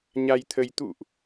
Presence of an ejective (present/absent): absent